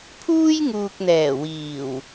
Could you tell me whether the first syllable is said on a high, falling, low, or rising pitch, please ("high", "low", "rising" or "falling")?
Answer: high